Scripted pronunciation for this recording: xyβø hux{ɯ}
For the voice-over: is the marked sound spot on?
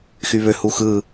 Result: yes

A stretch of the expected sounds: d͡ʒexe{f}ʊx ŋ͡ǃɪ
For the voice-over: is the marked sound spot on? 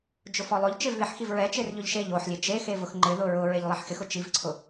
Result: no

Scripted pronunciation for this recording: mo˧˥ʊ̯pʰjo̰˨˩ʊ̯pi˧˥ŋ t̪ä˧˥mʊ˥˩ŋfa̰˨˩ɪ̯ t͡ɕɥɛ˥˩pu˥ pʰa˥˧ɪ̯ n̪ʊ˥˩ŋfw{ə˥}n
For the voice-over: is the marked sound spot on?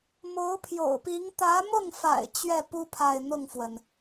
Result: no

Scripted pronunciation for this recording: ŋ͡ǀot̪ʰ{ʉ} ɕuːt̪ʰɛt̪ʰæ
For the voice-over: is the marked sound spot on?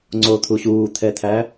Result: no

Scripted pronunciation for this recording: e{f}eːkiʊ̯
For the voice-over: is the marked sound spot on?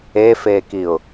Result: yes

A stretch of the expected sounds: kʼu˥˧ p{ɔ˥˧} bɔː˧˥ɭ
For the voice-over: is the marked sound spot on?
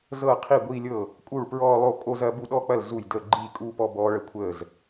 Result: yes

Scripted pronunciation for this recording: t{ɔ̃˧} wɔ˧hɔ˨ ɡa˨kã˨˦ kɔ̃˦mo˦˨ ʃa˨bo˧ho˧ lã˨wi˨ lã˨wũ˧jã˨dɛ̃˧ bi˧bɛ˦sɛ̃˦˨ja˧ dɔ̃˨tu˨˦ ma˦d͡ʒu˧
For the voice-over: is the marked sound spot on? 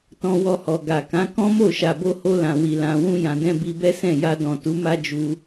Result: yes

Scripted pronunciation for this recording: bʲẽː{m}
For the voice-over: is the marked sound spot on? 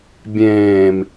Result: yes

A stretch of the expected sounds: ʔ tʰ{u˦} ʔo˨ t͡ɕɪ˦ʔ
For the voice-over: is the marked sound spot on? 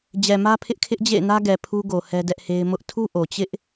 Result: yes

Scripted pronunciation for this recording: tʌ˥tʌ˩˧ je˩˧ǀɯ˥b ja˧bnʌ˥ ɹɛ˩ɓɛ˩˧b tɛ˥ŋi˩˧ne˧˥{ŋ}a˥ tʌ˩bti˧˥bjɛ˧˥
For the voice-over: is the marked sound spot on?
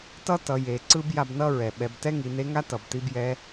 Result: yes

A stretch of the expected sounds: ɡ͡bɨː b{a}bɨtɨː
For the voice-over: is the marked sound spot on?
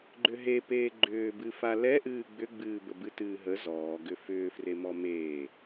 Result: no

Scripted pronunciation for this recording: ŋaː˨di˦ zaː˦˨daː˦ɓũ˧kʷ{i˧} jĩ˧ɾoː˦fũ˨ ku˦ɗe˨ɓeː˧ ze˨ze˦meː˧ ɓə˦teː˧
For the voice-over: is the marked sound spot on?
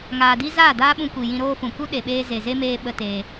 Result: no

